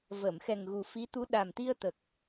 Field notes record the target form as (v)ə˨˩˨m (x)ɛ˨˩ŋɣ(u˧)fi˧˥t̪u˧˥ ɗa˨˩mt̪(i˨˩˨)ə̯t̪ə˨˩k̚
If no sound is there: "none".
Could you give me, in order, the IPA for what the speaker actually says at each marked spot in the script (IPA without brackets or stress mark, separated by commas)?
v, x, u˨˩, i˧